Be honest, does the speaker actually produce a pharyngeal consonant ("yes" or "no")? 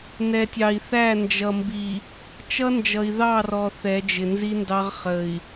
no